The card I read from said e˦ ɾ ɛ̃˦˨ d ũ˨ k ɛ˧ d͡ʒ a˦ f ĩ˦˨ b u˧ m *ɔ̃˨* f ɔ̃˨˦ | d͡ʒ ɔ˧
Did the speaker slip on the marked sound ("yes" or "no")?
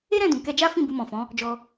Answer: no